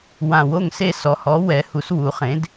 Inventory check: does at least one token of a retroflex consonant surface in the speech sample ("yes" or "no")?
no